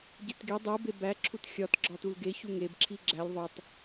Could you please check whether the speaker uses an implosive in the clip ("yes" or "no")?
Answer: no